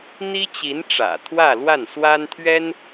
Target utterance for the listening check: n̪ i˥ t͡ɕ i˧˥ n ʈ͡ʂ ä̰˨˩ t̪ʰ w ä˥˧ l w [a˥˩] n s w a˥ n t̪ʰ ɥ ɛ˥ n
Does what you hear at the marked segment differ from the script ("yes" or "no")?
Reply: no